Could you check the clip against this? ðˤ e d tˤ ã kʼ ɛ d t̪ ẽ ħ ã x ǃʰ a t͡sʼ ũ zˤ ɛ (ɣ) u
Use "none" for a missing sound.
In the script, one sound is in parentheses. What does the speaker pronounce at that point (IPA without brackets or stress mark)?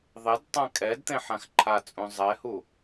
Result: h